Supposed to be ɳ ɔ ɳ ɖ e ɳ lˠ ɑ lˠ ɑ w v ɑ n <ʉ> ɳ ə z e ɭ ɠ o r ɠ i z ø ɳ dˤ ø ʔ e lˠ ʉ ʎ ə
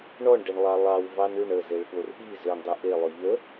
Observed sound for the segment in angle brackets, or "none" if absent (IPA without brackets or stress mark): ʉ